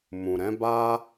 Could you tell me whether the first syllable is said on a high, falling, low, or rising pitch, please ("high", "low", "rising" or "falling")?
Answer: low